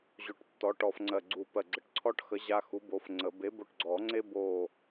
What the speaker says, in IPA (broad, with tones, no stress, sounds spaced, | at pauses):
ʑ o˧˩ ʈ tː ɔ˨˥ ʈ ɔ˧ f ŋ͡ǀ ɜ˧˩ ɡ͡ǀ u˧˩ p ɜ˧˩ ɡ͡ǀ ə˧˩ ʈ ǀʰ ɔ˥ ʈ x ə˨˥ ʑ a˧ x u˨˥ b o˨˥ f ŋ͡ǀ ə˨˩˦ b e˨˥ b o˧ ʈ ɡ͡ǀ ɔ˨˩˦ ŋ͡ǀ e˥ b o˧˩